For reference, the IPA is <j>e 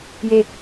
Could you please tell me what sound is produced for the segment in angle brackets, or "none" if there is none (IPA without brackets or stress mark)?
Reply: j